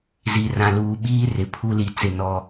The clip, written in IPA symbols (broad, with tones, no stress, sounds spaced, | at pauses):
z i˨ r ã˨ l uː˨ ɓ iː˦ r ɪ˨ pʰ u˦ l i˨ t͡s ɪ˦˨ n ɔ˦